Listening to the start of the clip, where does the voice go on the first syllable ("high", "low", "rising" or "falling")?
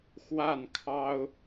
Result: falling